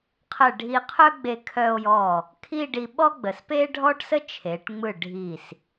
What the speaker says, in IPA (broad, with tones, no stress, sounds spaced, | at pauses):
qʰ ə˧˩ ɖʱ i˧ qʰ œ˥ ɡ͡b e˧ kʰ œ˧ o̯ j ɔ˧˩ | kʰ i˥˧ ɖ i˧ ɓ ɔ˥ ɡ͡b ə˩˧ s p e˥ ɖʱ ɔ˥ ʈ s ə˥ t͡ʃʰ e˩˧ ʈ ŋ͡m ɯ˧˩ ɖʱ i˧˩ s